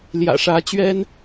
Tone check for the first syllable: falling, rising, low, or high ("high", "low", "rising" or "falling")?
low